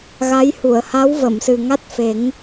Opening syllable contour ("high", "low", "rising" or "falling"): rising